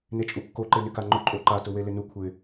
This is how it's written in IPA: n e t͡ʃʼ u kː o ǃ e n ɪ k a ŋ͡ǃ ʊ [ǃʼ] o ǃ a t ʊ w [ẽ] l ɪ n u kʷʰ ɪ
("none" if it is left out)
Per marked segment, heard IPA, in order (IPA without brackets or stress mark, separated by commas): ǃʼ, e